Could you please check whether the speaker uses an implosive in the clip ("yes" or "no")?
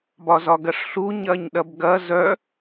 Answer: yes